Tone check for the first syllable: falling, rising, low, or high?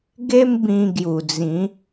high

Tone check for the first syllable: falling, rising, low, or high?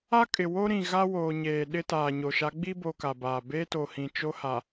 high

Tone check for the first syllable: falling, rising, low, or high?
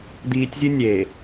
low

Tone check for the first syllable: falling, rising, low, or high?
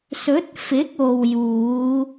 rising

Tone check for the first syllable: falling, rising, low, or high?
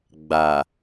low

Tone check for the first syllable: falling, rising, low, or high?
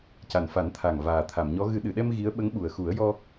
low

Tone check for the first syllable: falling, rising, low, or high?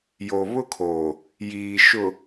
low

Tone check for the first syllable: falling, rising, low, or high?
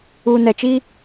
low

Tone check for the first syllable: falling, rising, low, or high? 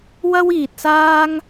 high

